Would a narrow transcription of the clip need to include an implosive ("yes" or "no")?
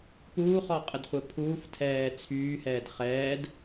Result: no